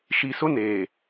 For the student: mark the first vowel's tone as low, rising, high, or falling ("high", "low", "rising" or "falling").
low